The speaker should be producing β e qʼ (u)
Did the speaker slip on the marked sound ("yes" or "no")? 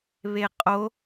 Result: yes